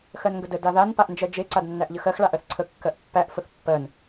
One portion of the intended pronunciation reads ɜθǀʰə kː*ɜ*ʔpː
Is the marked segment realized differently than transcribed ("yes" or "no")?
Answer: no